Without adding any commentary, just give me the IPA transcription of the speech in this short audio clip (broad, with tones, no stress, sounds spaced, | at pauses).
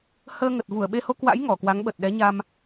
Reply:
h əː˧ ŋ ə˨˩ t̚ v u˧˩ ə̯ ɓ e˧ h o˧ k w a̰˧˥ j ŋ ɔ˧˩ k w a˨˦ ŋ ɓ ə˨˩ t̚ ɗ ɛ˨˦ ɲ a˧ m